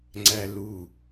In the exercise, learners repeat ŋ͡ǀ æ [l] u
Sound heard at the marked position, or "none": l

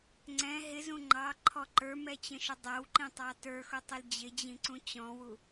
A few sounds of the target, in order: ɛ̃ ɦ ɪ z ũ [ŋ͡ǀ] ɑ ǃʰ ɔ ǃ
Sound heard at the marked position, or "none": ŋ͡ǃ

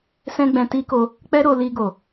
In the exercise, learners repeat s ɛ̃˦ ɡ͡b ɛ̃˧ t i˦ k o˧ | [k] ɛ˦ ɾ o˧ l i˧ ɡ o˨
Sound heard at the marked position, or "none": k͡p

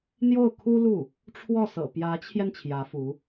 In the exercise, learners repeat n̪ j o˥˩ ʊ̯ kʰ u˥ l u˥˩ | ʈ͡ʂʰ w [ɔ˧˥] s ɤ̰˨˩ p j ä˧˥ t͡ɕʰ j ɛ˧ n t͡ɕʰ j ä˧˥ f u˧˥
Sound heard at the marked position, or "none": ɔ˥˩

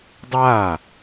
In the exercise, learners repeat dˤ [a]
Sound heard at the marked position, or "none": a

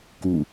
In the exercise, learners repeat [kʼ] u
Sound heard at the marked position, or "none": k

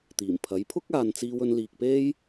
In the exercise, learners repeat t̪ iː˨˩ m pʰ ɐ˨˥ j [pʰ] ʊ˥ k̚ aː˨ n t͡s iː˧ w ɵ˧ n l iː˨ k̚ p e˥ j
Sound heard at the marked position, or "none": pʰ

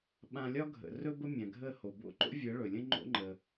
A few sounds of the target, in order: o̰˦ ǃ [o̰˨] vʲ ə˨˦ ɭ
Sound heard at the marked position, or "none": o̰˦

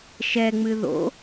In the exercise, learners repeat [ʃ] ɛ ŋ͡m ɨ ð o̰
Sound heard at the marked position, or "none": ʃ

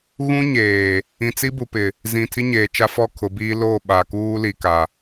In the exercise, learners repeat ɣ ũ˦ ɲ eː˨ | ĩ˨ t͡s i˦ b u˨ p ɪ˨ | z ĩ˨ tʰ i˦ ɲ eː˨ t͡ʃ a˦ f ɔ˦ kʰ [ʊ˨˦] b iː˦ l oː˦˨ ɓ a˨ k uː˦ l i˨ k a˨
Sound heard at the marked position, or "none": ʊ˨˦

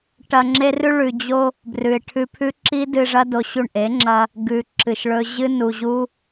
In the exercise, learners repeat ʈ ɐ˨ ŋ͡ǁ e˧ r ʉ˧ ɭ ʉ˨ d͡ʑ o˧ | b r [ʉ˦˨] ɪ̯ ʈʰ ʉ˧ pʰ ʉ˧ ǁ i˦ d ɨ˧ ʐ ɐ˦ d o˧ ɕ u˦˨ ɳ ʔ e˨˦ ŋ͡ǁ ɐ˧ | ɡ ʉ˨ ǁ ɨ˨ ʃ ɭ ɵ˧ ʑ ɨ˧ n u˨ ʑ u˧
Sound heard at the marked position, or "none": ʉ˨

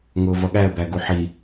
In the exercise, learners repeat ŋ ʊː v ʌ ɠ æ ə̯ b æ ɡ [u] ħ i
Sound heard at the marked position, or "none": u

